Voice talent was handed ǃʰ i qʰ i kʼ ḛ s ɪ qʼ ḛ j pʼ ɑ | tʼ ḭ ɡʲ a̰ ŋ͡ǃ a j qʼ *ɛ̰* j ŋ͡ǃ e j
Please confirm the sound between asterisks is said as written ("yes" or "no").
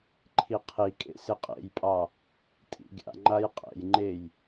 yes